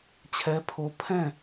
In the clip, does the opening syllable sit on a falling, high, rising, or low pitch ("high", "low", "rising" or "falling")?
rising